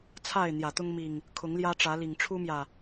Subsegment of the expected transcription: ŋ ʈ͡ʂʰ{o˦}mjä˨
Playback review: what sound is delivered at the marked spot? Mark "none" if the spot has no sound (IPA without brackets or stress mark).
u˦